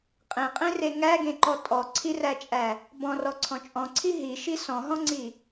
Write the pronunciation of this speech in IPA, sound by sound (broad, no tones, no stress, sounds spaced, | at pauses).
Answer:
qʼ ẽ qʼ ẽ r e ŋ æ ɡ ẽ ǃ ɔ tʼ ɔ ǀʰ i r æ t͡ʃʼ æ | b ɔ̃ r ɔ ǀʰ ɔ̃ t͡ʃʼ ɔ̃ ǀʰ i ɦ i ʃ i s ɔ̃ ɦ ɔ̃ ŋ͡ǀ i